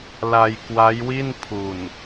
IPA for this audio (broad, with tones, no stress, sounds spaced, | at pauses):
l a˧ j k w a˦˥ j w i˥˩ n pʰ u˨˩ n